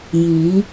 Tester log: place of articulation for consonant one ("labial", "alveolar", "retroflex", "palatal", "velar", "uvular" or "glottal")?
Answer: palatal